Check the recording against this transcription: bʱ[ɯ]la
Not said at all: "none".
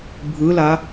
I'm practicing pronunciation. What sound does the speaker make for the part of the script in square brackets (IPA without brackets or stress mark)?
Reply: ɯ